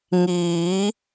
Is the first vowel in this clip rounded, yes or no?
no